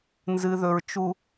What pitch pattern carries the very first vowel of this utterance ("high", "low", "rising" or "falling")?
low